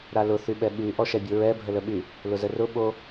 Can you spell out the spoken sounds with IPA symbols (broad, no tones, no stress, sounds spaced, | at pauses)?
ɾ a l ʊ θ y ɓ ɛ ɓ y ʔ ɔ ʃ ɛ bʲ o ɹ ɛ bʱ ə l ə ɓ y | l ʊ z ə r ʊ ɓ o